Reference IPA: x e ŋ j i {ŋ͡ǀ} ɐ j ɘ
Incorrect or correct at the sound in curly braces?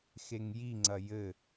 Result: correct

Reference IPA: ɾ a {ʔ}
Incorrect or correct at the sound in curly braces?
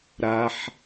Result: incorrect: ħ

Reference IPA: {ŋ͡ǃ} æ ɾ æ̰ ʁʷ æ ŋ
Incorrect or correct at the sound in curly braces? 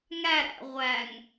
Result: incorrect: ŋ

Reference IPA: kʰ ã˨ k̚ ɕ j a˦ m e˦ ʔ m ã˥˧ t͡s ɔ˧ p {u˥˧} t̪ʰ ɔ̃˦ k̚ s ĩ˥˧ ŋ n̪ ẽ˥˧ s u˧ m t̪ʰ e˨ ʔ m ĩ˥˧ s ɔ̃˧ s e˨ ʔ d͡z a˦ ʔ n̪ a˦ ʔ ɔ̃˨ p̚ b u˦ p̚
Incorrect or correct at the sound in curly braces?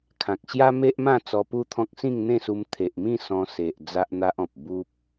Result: correct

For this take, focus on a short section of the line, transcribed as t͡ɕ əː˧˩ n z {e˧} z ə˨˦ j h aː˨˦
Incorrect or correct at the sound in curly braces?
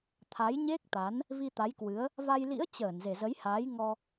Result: incorrect: e˨˩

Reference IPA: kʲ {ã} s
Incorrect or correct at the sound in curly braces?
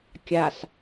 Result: incorrect: a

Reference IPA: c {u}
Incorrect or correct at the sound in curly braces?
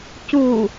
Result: correct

